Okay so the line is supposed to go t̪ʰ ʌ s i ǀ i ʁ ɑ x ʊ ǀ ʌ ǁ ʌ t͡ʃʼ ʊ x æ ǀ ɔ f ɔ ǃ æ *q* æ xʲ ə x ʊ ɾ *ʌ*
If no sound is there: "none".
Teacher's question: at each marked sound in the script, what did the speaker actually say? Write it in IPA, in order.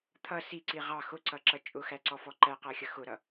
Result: q, ʌ

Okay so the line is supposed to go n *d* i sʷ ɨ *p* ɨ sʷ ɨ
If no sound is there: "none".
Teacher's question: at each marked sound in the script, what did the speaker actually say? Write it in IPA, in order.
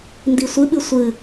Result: d, ɓ

